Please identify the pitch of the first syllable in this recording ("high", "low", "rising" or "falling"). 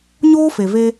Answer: high